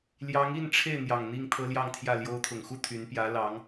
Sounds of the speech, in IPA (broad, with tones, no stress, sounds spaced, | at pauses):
l j ɑ˧˥ ŋ i˥˧ n ʈ͡ʂʰ e˥˩ ɪ̯ n̪ j ɑ˨˩ ŋ n̪ i˥˩ ŋ t̪ʰ ɤ˥ l j ɑ˥˧ ŋ t̪ʰ j ä˥˩ l j o˧˥ ʊ̯ t̪ʰ ʊ˨˩ ŋ x u˥˩ t̪ʰ y˧˥ n p j ä˧˥ l ɑ˧˥ ŋ